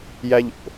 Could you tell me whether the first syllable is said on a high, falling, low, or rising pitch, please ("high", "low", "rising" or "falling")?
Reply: high